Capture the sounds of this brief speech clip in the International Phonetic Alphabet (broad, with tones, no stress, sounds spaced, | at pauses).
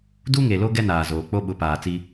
d u˦ ŋ e˨ l o˦ ɡ ɛ˦ n aː˨ z oː˨ k͡p o˦ ɓ ʊ˨˦ p aː˨ t͡s i˦